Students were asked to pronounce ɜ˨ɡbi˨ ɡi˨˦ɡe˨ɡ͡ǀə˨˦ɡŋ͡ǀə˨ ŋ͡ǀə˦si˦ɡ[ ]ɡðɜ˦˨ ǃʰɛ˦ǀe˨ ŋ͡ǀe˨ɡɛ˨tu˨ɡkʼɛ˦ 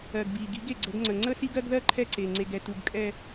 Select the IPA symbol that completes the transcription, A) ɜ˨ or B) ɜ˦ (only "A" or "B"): B